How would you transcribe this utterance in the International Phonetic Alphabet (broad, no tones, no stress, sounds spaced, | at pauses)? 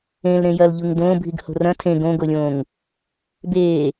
ẽ l ɾ ẽ j ɐ l ʎ u ŋ d õː bʱ i ɡ h o̤ r ɐ̃ tʰ ẽ ɡ õ ɡ o lʲ õː ŋ | b eː